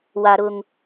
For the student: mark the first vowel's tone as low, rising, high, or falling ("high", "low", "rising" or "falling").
high